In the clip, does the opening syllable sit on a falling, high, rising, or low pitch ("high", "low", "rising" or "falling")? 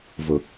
low